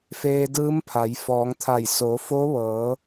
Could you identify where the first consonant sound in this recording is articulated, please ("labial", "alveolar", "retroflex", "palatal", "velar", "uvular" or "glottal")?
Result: labial